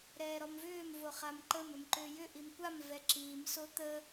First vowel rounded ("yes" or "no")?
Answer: no